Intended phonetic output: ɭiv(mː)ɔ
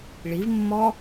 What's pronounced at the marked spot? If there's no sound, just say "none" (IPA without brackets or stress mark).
mː